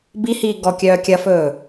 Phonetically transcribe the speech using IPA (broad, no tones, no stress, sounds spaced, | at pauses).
b i h iː ɡ ɔ kʲ œː kʲ ɐ f ɵː